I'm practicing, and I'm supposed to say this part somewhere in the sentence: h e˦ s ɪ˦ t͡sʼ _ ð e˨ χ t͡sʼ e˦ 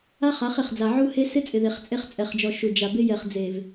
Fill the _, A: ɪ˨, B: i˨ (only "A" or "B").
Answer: A